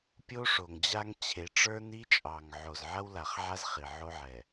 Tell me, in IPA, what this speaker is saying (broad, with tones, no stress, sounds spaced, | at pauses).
pʲ o˦ ʂ o˨ ŋ d͡ʑ a˦ ŋ t͡ɕʰ e˨˦ ʈ͡ʂ ə˞˦ n i˦ t͡ʃʼ ɑ˨ ŋ ʕ o˨ z ʕ ɐ˦ w l a˨ χ ʕ a˦ z χ i˨ ʕ o˦ ʕ ɛ˨